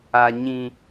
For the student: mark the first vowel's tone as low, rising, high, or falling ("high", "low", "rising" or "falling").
high